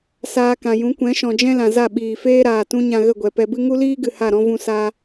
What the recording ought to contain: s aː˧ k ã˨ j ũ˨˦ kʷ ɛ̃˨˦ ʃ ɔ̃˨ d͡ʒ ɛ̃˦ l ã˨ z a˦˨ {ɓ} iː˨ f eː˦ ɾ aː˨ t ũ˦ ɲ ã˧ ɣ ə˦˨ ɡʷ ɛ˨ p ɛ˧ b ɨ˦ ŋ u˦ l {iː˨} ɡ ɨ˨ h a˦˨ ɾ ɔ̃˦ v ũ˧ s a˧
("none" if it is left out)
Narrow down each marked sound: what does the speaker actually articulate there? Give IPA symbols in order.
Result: ɓ, iː˦

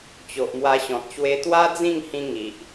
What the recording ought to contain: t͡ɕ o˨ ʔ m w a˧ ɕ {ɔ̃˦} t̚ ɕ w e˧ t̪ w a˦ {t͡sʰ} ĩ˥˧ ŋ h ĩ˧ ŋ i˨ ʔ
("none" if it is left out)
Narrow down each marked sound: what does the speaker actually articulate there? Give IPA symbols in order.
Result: ɔ̃˨, d͡z

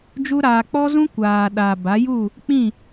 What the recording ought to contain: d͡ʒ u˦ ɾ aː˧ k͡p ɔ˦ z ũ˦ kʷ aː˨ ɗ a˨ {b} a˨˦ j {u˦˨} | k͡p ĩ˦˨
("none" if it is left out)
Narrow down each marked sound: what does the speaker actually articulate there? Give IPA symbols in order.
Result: b, u˦˨

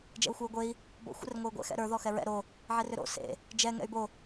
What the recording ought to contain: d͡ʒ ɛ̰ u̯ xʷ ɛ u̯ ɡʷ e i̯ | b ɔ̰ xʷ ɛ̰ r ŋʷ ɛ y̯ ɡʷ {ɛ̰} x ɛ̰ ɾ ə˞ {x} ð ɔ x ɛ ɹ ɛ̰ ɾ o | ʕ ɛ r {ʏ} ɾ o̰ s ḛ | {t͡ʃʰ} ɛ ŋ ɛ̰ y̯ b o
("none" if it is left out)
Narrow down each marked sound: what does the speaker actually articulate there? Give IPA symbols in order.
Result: ɛ̰, none, ʏ, d͡ʒ

